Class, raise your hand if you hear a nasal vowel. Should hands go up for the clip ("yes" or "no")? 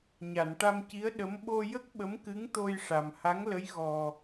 no